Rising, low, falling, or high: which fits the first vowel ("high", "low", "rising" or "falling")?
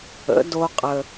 rising